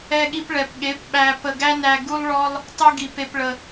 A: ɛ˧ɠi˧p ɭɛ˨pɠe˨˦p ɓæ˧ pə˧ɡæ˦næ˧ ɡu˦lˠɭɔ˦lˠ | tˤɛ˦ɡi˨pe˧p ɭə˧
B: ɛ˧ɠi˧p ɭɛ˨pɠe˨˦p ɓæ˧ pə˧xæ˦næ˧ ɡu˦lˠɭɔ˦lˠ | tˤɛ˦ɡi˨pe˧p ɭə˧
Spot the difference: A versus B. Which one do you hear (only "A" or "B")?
A